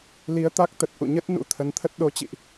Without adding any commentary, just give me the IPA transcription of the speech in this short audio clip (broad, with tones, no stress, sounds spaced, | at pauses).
l i˨˦ ə̯ t̪ a˦˥ k̚ t̪ ə˨˩ t̚ ʔ ṵ˧˨ ɲ ə˦˥ t̚ n ṵ˧˥ t̪ʰ ə˨˦ n t̪ʰ ə˦˥ t̚ ɗ o˨˦ t͡ɕ ḭ˧˨ ʔ